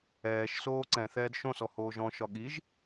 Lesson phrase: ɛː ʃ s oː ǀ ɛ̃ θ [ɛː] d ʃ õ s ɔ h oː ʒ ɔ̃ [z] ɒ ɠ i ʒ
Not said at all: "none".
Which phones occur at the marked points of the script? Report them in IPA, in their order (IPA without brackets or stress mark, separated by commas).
ɛː, ʃ